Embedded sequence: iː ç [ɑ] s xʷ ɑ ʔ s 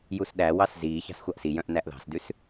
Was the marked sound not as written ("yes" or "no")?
yes